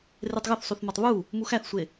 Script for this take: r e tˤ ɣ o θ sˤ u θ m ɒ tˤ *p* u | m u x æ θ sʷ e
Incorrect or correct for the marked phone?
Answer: incorrect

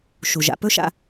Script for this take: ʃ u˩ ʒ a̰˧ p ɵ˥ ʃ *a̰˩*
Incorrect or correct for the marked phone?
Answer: incorrect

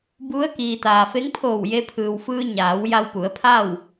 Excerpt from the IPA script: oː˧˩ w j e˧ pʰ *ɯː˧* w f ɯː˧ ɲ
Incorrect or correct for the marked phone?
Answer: incorrect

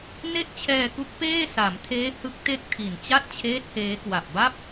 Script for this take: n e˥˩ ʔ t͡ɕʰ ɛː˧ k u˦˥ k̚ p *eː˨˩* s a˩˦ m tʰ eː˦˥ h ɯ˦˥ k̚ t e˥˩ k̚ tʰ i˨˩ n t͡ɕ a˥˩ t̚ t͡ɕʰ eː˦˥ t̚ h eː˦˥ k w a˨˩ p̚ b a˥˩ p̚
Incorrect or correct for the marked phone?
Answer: incorrect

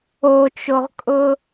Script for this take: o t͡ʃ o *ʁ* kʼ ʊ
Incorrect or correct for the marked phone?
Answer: correct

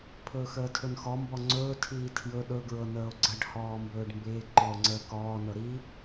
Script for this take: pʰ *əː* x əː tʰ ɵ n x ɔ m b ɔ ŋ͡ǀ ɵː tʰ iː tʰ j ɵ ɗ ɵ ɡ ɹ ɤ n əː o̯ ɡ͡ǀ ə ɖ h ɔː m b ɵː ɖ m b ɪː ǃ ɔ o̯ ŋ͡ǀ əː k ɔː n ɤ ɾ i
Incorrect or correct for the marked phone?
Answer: incorrect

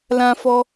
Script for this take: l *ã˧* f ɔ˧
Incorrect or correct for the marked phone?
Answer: correct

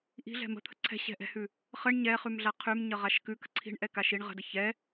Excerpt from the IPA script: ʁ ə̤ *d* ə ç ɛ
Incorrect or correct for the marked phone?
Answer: correct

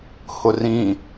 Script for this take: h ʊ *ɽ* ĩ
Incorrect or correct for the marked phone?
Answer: incorrect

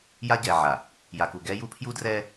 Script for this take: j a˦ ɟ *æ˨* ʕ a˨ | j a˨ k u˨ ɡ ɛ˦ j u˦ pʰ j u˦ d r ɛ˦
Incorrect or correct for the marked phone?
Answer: incorrect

